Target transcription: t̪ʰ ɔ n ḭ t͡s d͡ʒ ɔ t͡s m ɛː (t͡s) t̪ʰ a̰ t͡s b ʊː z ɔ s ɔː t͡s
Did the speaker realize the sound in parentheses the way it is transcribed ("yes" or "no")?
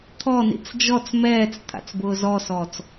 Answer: yes